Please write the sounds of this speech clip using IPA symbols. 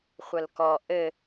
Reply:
χʷ ɐ l k ɔ ʔ ɘ

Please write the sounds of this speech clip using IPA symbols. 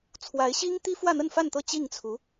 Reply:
t͡sʰ w a˧˥ ɪ̯ ɕ i˥ ŋ t̪ i˥ f w ä˥˧ n̪ ə˥˧ n f a˥˧ n t̪ ɤ˥˧ t͡ɕ i˥˩ ŋ t͡sʰ u˧˥

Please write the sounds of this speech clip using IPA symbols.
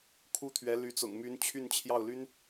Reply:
kʰ u˥ t̪ʰ ɥ ɛ˧˥ l y˧˥ t͡s ʊ̰˨˩ ŋ m y˧˥ n t͡ɕʰ y˥˧ n t͡ɕʰ j ɑ˥˩ ʊ̯ l y˥ n

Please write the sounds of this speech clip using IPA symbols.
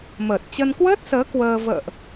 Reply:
m əː˨˩ t̚ t͡ɕ ə˧ n k w əː˦˥ t̚ s əː˨˦ k w əː˧ v ə̰ː˧˨ ʔ

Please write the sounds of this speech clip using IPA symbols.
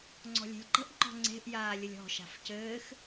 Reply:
ŋ͡ǀ ɔ̤ lʲ e̤ lʲ ǃ ə̤ ʔ ŋ͡ǃ ɔ̤ ŋ͡ǀ e̤ ʔ j aː lʲ ə lʲ ɔ̤ ʃ a̤ f c ɘː x

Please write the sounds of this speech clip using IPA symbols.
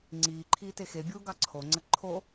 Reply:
ŋ͡ǀ iː ǃʰ iː t e x e bʲ uː ɡ ɑ ǀʰ o ŋ͡ǀ ə ǃʰ o

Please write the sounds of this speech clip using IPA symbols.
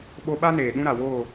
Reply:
ɓ o˧ ɓ a˦ n eː˨ ɗ ũ˦ ɾ a˨ w oː˦˨

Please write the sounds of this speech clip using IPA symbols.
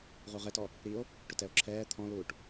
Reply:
ʁ u ʁ ɛ t ɔ | ɾ i o̯ | ʈ ʊ t ɛ o̯ ǁʰ ɛː t̪ʰ ɔ̃ l uː ʈ

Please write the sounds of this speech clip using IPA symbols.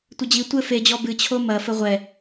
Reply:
tʷ ɘ d͡ʑ i tʷ ɘ f e d͡ʑ ɔ b ɨ t͡ɕʰ o m ɐ f ɘ ʁʷ ɛ

